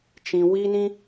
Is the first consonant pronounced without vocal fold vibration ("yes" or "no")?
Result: yes